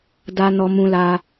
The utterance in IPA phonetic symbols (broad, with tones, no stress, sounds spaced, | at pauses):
d a˦ n ɔ˦ m ũ˦ l a˦